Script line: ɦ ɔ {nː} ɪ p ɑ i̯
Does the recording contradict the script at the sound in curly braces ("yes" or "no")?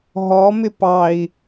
yes